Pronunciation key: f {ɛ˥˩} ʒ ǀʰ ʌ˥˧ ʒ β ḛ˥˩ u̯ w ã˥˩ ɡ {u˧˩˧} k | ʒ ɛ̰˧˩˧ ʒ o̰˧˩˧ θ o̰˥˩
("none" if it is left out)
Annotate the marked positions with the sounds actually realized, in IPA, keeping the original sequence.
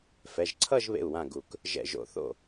ɛ˩˧˩, u˧˩˧

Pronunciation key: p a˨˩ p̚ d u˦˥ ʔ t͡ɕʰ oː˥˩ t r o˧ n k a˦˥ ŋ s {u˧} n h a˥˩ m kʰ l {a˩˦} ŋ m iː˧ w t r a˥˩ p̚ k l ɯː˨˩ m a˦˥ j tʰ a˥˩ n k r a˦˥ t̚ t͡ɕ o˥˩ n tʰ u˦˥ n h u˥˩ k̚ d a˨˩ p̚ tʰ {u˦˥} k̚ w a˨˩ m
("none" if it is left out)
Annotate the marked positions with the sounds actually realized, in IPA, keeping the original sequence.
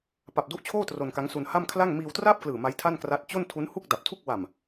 u˧, a˥˩, u˥˩

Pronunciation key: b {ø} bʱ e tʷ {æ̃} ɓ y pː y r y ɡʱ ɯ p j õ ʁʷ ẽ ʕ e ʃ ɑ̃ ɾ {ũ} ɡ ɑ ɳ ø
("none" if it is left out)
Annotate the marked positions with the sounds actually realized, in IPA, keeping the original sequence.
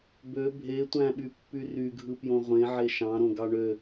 ø, æ̃, õ

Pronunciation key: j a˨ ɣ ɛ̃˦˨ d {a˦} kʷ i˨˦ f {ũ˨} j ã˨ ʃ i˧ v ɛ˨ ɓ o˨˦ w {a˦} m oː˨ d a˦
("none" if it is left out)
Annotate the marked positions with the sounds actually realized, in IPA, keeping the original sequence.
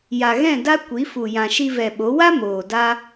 a˦, u˨, a˦

